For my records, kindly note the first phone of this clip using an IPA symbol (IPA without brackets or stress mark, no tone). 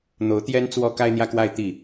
n̪